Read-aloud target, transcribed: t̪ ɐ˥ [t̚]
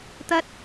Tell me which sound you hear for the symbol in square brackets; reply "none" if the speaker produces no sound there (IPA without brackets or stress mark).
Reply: t̚